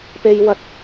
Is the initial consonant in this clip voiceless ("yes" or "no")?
yes